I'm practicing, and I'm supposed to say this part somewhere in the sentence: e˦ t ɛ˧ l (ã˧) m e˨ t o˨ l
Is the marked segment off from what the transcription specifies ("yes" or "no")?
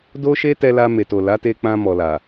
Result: yes